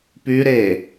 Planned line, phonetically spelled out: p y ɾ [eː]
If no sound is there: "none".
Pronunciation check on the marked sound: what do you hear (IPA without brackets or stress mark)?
eː